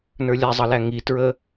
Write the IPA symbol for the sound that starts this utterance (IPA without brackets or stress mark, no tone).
n